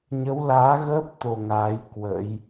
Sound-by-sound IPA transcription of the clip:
ɲ ə˨˦ w l aː˨˦ ɣ əː˦˥ p̚ t̪ o˧ ŋ aː˨˦ j k w ə̰˧˥ j

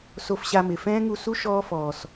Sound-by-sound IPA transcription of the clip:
s o˧ f ɕ a˧ m ɪ˨ f ɛ̃ː˦ ŋ u˧ s u˦ ʃ ɔː˦ f ɔː˨ s

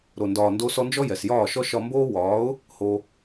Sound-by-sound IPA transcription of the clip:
ɾ o˨ n d ɒː˨ n d o˧ s ɔ˧ n d͡ʒ ɔ˦ j ɛ˨ s j ɒː˦˨ ʃ ɔ˦ ʃ ɒ˧ m b oː˦ w ɒː˨˦ ʊ̯ | h o˧

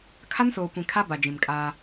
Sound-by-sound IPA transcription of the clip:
kʰ a˦ n s oː˨ kʷ ĩ˨ kʰ a˦ b a˨ d͡ʒ ĩ˨ m kʼ aː˦

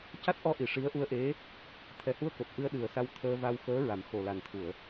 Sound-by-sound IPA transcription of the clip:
c a˦˥ t̚ ʔ ɔ˧ ʔ i˨˩˨ ʂ i˧˥ ə̯ ʔ u˧ ə̯ ʔ e˧˥ | t̪ʰ ɛ˨˩ h u˧ ə̯ k o˨˩ t̚ ʔ ɨ˧ ə̯ ɗ ɨ˨˩ ə̯ s a˧ w t̪ʰ əː˧ v a˧ w x əː˧˥ ɹ a˨˩˦ m x o˨˩ l a˨˩ n t̪ʰ u˨˩˨ ə̯

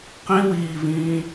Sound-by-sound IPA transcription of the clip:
q ĩ w iː v ĩː

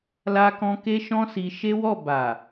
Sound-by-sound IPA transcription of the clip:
l a˦ k ɔ̃˦ k e˦ ʃ ɔ̃˦ s i˧ ʃ e˦ w ɔ˦˨ b a˨

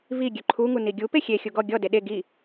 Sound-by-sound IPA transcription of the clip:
v i ɡʲ ø ǃʰ u ŋ u n i ɡʲ u p e xʲ e xʲ u ɡ ɔ ɡʲ ɔ d e ɗ e ɡ i

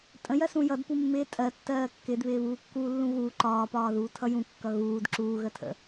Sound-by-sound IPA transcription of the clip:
tʼ ə̃ j ɜ s ũ j ʌ d p u mː ɪː tʼ ɜ tː ɜː kː ɪ d β ɪː β uː kː uː lː ũ ɣ uː ǃ ɒː p ɒː ð uː tʰ ʌ j ũ kː ʌ ɣ uː d ǁ uː ɣ ə tʰ ə̰

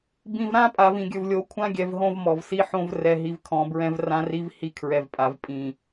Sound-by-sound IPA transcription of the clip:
b ĩ˨ v ɾ ã˦ pʼ a˨ v ĩ˨ ɡʲ ɵ˨ v lʲ o˨˦ kʷʰ ã˦ ɡʲ ɛ˨ v ɦ õ˦ v m ɔ˨ v s i˦ ħ õ˦ v r ɛ˨ ɦ i˨ v kʰ ɔ̃˨ b ɹ ɛ̃˦ v r ã˦ r i˦ v h i˦ kʰ ɹ ɛ˨ v pʼ a˨ v pʼ ĩ˨

